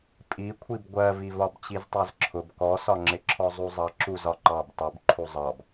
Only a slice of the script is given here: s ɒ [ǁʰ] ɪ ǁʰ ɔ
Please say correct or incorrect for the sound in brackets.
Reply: incorrect